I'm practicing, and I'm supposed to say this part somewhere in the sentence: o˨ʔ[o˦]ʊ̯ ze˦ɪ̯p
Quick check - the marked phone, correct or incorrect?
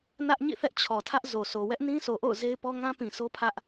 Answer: incorrect: o̰˦˨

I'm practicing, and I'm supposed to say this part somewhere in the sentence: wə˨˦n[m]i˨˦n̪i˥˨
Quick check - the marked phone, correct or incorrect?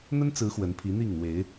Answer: incorrect: pʰ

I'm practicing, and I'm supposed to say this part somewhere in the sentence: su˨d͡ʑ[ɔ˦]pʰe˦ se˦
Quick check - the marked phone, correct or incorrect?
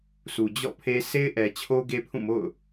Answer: incorrect: ɔ̰˦˨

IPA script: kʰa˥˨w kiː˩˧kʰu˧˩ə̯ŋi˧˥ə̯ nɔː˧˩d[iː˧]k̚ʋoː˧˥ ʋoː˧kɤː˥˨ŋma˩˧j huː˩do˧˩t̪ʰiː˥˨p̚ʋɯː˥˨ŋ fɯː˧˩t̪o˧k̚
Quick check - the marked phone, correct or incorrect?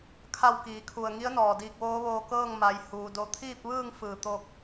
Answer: correct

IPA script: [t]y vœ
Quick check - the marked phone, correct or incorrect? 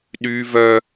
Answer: incorrect: ɗ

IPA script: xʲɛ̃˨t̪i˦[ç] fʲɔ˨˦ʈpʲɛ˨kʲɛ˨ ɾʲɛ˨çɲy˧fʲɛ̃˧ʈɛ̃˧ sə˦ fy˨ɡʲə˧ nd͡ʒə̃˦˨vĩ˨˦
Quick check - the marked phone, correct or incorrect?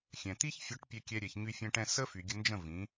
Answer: correct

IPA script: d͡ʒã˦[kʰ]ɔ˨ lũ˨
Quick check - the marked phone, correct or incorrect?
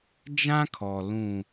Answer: correct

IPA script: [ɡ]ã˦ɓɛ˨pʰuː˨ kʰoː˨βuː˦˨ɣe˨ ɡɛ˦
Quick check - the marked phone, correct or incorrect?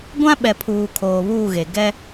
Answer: incorrect: ɡʷ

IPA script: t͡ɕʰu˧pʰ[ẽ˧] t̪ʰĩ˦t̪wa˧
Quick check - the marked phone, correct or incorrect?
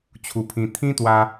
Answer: incorrect: ĩ˧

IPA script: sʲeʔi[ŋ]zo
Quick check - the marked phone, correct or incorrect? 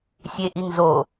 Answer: correct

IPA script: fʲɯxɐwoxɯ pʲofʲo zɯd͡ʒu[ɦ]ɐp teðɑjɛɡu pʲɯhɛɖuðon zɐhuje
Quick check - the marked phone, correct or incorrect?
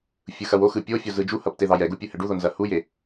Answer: incorrect: h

